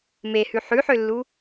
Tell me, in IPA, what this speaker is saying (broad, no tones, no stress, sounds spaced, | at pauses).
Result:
m e h ʉ ħ ʉ ħ ø lː u